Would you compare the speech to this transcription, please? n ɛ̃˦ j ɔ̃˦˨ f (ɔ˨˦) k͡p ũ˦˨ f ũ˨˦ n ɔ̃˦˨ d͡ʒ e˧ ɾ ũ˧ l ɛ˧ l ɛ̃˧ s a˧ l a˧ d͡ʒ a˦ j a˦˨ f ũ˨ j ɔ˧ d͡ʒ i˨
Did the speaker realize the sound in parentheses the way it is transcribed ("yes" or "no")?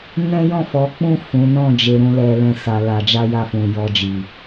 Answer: yes